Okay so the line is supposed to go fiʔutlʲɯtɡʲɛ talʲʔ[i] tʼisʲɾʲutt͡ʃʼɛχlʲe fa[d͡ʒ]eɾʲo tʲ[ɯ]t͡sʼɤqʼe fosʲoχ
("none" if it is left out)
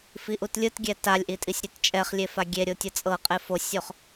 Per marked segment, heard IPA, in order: i, ɡʲ, ɤ

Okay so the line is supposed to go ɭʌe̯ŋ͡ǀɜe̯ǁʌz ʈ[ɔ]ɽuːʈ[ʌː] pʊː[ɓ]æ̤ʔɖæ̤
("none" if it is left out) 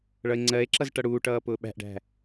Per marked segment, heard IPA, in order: ʌ, ʌː, ɓ

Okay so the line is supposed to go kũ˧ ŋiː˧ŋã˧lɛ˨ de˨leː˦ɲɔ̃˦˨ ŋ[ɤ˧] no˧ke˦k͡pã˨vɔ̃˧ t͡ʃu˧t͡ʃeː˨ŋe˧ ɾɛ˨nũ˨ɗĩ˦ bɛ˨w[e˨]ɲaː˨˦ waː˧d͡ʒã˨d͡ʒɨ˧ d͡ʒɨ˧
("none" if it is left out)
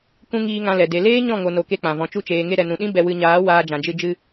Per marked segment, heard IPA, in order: o˧, ɨ˨

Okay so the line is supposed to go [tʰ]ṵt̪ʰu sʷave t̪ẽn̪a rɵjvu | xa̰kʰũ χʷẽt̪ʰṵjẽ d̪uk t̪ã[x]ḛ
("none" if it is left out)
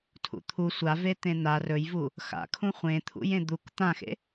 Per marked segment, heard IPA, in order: tʰ, x

